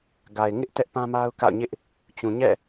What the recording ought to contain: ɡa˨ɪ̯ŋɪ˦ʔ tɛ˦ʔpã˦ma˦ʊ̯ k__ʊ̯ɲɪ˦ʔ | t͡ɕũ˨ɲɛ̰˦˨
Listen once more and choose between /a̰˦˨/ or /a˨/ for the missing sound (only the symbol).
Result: a̰˦˨